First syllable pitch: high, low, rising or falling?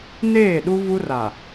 falling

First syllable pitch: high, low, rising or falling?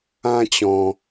high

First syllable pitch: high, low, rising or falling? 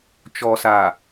low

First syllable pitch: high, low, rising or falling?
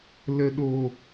low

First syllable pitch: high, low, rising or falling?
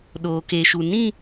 low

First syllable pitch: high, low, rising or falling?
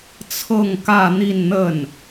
falling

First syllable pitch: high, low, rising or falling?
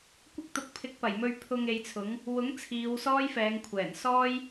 high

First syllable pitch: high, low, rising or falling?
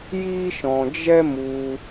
high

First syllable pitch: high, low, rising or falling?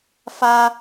high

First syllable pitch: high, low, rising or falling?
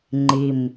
low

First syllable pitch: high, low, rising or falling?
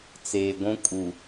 low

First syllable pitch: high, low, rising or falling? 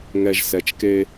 low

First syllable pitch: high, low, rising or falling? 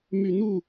low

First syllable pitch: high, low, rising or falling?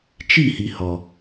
falling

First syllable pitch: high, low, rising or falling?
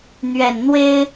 low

